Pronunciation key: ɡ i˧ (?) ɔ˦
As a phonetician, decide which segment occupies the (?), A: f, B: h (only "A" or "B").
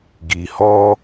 B